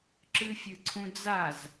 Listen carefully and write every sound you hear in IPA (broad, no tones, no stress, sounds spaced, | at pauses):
ǁ ɨ fʲ ɨ ǀʰ ũ d͡z a z